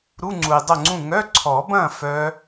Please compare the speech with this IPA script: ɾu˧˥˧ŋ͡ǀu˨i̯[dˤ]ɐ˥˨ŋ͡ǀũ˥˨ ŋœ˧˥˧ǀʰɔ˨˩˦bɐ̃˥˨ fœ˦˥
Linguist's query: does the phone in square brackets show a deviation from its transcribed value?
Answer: no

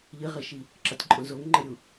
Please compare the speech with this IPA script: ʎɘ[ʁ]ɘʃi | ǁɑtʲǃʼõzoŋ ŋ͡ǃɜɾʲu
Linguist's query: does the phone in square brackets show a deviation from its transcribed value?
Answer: no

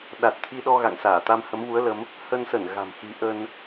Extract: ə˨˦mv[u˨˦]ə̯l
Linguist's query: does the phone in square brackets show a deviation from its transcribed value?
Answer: no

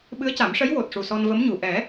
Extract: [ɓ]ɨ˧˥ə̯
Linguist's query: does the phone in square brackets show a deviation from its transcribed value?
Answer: no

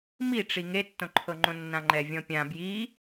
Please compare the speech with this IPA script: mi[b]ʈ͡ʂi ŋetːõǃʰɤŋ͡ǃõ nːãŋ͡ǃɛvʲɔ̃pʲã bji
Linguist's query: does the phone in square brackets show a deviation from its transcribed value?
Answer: yes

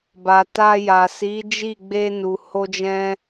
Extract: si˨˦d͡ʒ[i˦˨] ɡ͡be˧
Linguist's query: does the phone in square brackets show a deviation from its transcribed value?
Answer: no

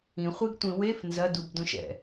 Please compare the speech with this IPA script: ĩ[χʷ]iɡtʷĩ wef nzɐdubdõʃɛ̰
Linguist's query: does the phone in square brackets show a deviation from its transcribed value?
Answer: no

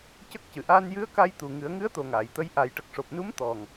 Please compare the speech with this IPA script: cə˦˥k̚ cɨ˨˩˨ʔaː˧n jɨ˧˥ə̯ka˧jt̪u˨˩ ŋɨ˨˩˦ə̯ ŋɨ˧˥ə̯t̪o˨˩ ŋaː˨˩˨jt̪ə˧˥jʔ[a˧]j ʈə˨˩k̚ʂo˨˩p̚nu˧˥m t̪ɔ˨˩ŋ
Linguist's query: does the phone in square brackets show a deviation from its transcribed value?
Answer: yes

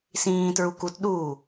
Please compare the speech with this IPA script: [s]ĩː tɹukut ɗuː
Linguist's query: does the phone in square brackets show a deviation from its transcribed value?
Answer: no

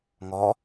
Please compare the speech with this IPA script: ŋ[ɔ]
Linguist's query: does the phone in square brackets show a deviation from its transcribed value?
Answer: no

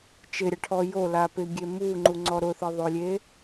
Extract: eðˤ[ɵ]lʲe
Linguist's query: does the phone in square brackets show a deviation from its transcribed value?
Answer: yes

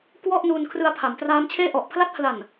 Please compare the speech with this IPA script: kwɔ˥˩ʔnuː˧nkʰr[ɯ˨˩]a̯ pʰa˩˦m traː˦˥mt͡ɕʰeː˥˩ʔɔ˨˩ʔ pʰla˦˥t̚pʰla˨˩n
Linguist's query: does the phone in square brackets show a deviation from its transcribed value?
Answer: yes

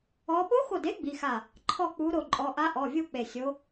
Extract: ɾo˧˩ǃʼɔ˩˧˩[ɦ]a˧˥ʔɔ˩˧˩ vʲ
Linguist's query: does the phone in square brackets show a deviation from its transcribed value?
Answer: yes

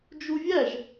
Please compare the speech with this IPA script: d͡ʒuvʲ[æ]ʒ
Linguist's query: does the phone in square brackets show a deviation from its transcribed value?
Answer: no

